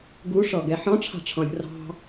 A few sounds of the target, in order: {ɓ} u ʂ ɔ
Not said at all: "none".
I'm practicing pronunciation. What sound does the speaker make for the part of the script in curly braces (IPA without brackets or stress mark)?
ɡ